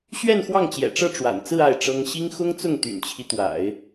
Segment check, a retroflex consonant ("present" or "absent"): present